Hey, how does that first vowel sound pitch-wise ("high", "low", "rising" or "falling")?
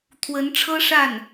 rising